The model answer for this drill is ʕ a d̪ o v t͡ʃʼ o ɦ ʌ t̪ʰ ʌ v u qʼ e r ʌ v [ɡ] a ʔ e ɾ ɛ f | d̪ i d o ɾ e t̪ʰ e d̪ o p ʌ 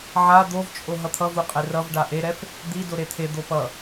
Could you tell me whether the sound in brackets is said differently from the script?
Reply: yes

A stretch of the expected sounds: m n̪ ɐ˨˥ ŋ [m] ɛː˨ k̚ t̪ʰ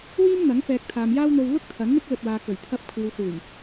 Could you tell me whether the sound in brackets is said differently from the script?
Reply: yes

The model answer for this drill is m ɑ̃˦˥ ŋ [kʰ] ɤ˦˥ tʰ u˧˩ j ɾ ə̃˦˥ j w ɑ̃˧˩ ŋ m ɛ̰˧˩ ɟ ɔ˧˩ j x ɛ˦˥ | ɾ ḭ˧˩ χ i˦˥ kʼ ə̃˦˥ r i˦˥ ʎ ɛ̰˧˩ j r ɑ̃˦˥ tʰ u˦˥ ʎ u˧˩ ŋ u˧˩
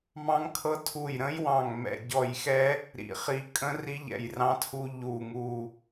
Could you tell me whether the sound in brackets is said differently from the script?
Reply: no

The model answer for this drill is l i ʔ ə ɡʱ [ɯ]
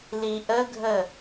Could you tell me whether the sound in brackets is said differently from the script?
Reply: yes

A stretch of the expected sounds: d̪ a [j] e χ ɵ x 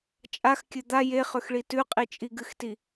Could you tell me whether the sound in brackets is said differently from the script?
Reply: no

